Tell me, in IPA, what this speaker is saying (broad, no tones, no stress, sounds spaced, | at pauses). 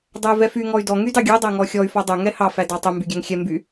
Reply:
dˤ æ y̯ v ɛ f y ŋ ɔ y̯ d ɔ ŋ y d ɑ ɡʲ ø dˤ æ ŋ ɔ xʲ ɔ y̯ f ɔ dˤ ɵ ŋ ɛ h ɑ f æ d ɑ tˤ ɵ m b y ɡʲ æ ŋ xʲ ɛ m b y